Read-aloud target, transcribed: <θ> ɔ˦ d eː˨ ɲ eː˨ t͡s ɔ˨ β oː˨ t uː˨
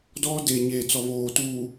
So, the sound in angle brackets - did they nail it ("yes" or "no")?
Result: no